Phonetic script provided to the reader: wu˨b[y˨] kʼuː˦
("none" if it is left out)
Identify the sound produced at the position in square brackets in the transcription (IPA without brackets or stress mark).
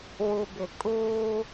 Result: ɪ˨